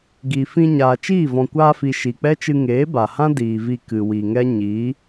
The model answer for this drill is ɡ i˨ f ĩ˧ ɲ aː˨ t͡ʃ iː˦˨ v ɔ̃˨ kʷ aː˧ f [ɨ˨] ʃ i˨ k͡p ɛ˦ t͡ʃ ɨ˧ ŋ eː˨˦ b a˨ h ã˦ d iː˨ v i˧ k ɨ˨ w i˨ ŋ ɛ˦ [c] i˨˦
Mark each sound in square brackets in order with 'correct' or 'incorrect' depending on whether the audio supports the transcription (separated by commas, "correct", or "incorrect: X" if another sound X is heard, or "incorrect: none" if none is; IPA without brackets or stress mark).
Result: incorrect: i˨, incorrect: ɲ